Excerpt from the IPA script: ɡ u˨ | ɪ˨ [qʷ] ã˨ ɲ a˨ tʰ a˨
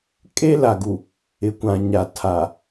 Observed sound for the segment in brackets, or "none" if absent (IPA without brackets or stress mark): kʷ